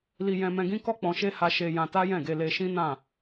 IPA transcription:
l i˧ j ɛ̃˧ m ɛ̃˧ ɡ ĩ˦ k ɔ˦ k͡p ɔ̃˧ ʃ e˦ h a˧ ʃ e˧ j ã˧ t a˦ j ɛ̃˦˨ ɡ e˧ l e˧ ʃ ĩ˦ n ã˦˨

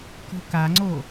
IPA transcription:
k o̤ k a ŋ͡ǀ o

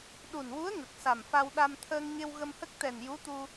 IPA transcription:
ɗ u˨˩ n w u˧˥ ə̯ ŋ ə˨˩ k̚ s a˨˩ m f a˧ w ɗ a˧ m t̪ʰ əː˧ ŋ ɲ e˧ w ɣ ə˧ m h ə˦˥ k̚ t̪ ɛ˨˩ n j u˧˥ t̪ u˧

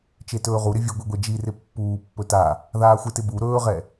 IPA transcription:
t͡ʃ e t ɵː ʁ u ɾ ɪ vʲ ɵ ɡʷ i ɡʷ e d͡ʒ i r ɪ pː uː pː ɵ t a | ð aː xʷ ɪ t ɪ b u ɾ ɵː ʁ ɛ

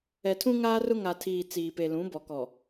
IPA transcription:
ɛ˨ tʰ ũ˦ ŋ aː˦ r ʊ˦ ŋ a˨ tʰ iː˨ t͡s iː˨ p e˨ l ũ˨˦ b ɔ˨ k ɔ˨

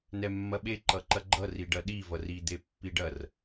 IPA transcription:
n ɛ mː ɐ ɓ e ǃ ʌ ǃ ɐ ɡ͡ǃ ʌ r i ɖ ɐ ɗ i v ʌ r i d̪ e pː i ɖ ɐ r

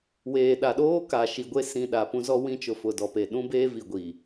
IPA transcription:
w eː˨ ɗ a˨ ɗ oː˦ k a˨ ʃ i˨ ɡʷ e˦ s ĩ˨ ɗ a˨ p ũ˦ z ɔ˦ w ĩ˦ t͡ʃ ʊ˨ f ʊ˨ d ɔ˨ p e˨ ɗ ũ˦ b eː˦ v i˨ ɡʷ iː˨

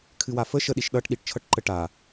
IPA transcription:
kʰ ɨ w a f ə ʃ ə ɗ i ʃ ɗ ʌ ʈ ɗ i ʈ t͡ʃʰ ʌ ʈ ǃ ə ʈ a

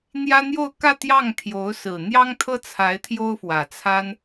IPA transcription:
n̪ j ä˥ n̪ j o˥˧ ʊ̯ k ä˥˧ t̪ j ɑ˥˩ ŋ t̪ʰ j o˧˥ ʊ̯ s ɹ̩˨˩ n̪ j ɑ˥ ŋ t̪ʰ ɤ˥ t͡sʰ a˧˥ ɪ̯ t̪ʰ j o˥ ʊ̯ f w ä˨˩ t͡sʰ a˥ n

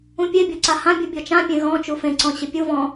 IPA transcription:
ũ pʲ e bʲ ɔ ǀ a h ã bʲ u bʲ ɔ t͡ʃ ã pʲ ẽ ɣ ɔ̃ t͡ʃ u f ẽ ǀ ɔ̃ ɕ ɪ pʲ u v ɔ̃

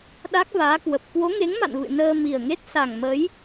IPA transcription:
ɗ a˦˥ k̚ v aː˨˦ k w ə˨˩ p̚ k w o˨˦ ŋ e˨˦ ŋ m a̰˧˨ n v ɨ̰˧˨ n əː˧ m i˨˩ ə̯ ŋ e˦˥ t̚ s a˨˩ ŋ m ə˨˦ j

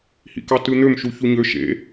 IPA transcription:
h ḭ k ɑ t ɯ n̪ ø m ʃ u ç u ɲ ø ʃ ḛ

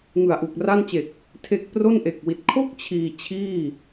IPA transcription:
ŋ ɯ˨˩ a̯ ʔ u˨˩ k̚ r a˥˩ n t͡ɕ e˨˩ k̚ | tʰ e˦˥ k̚ p r o˥˩ n ʔ e˨˩ k̚ w i˨˩ t̚ kʰ o˥˩ k̚ t͡ɕʰ iː˧ t͡ɕʰ iː˥˩

